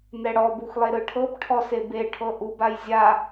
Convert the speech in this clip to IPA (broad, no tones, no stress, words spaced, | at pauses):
nɛɽɔ buxlˠeɾɯʈʰɤb ʈʰɔsebe ʈʰɤʔub ajzʲa